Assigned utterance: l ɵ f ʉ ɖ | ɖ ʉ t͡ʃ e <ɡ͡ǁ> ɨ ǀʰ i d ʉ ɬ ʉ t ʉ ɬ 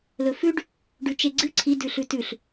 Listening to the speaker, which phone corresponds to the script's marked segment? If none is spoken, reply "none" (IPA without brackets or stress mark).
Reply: ɡ͡ǀ